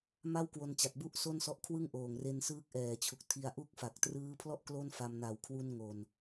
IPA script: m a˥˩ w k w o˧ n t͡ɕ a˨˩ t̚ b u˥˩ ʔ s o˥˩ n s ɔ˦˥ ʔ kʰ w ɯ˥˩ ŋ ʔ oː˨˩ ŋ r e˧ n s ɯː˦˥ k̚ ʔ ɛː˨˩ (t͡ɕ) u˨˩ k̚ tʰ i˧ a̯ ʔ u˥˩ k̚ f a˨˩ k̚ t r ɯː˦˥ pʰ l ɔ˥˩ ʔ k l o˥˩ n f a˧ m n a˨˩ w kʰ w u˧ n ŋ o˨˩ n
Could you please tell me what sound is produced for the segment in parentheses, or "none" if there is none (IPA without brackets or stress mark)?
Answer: t͡ɕʰ